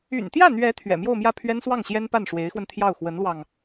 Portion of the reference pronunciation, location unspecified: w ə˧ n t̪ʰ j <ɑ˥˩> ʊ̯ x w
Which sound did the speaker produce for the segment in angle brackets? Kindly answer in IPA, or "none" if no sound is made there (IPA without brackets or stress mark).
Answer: ɑ˥˩